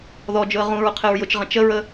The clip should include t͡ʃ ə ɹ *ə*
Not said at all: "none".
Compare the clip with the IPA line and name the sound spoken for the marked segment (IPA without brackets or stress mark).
ə